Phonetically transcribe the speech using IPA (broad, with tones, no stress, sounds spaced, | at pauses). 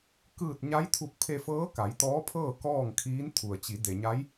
k ɯː˧˩ t̚ ɲ a˧˥ j t̪ʰ u˧˩ k̚ pʰ e˧ f ɤː˧˥ k a˩˧ j t̪ ɔː˧˥ pʰ ɤː˥˨ k ɔː˥˨ ŋ kʰ iː˧˥ n t̪ʰ u˩ ə̯ t͡ɕ i˩˧ d e˩ ɲ a˧˥ j